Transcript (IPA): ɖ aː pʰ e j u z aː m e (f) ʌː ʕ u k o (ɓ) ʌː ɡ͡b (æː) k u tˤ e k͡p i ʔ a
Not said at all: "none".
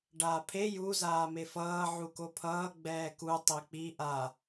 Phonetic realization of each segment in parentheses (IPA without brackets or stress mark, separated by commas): f, pʰ, ɛː